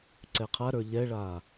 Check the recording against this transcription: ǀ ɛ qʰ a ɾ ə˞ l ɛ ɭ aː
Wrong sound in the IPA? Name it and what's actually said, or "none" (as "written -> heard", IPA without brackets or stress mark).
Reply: l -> ʎ